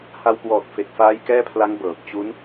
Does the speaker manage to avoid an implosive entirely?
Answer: yes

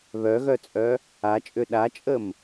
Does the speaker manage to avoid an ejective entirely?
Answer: no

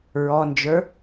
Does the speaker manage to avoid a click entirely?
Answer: yes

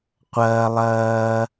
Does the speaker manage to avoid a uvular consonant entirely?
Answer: no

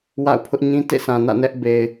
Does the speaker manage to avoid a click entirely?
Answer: yes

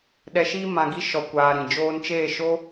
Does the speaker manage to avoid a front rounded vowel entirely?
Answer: yes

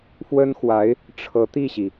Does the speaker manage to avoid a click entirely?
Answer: yes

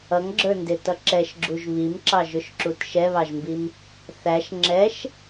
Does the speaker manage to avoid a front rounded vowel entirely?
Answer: yes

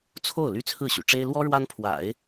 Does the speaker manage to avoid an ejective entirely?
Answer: yes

